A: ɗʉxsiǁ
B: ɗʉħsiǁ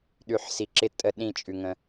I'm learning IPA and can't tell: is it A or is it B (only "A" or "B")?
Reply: B